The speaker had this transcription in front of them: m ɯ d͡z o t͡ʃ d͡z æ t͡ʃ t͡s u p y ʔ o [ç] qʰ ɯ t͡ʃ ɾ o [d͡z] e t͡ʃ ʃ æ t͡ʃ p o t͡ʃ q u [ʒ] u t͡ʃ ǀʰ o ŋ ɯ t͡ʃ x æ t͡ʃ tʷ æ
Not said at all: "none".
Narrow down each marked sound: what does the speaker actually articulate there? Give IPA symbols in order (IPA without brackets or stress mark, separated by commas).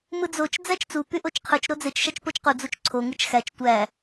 t͡ʃ, d͡z, d͡z